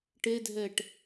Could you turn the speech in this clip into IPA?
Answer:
ʈ e dʱ ɛ ʈ

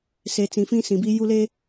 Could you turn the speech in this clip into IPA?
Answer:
s e˨ t͡s ĩ˨ f ĩ˦ s ĩ˨ b i˦ j u˦ l e˦

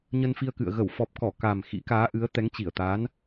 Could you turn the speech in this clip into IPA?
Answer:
ɲ ə˧ n f i˧ ə̯ k ɨ̰˧˨ ə̯ ɣ ə˧˩ w f ɔ˨˩ p̚ k ɔ˧˩ k a˨˩ m x ḭ˧˥ k aː˨˦ ʔ ɨ˨˦ ə̯ t̪ ɛ˨˦ ŋ t͡ɕ i˧˩ ə̯ t̪ a˨˦ n

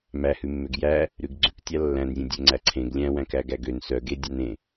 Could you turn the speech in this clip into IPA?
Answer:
m æ h ʉ mː ø ɡ j æ | ɾ ʉ ɡ ɡ͡ǀ ʉ k tʲ ɑ lː æ̃ n zʲ ẽ dʲ ø ŋ͡ǀ æ ǀʰ ẽ ɡ lʲ æ̃ w æ̃ k æ ɡ æ ɡ ø n s œ ɡ e dʲ ɑ n ẽ

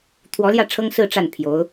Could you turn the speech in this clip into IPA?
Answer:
t̪ʰ w ɔ˧˥ l j ä˥˩ ʈ͡ʂʰ ɤ˥ ŋ s ɹ̩˥˧ ʈ͡ʂ a˥˩ n pʰ j o˧˥ ʊ̯

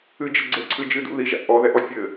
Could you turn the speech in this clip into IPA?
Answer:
ɨ d͡ʒ ɘ ɡ͡ǀ ɘ ǀʰ ɨ d͡ʒ ɨ d ṵ ð i ʒ a̰ ʔ ɔ ð ɛ ʔ ɔ fʲ ɘ

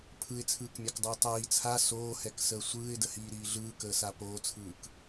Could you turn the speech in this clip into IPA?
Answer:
pʰ ɯ ɪ̯ t͡sʰ ɯː k mʲ a k dˤ ɯː tˤ iː t͡sʰ a s oː h ɛ k s əː sʷ ɯː ɪ̯ d ə h iː ɾ iː ɮ ɯː k əː s a p oː t͡sʰ ɯː k

